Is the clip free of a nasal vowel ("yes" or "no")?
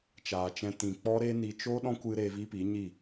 no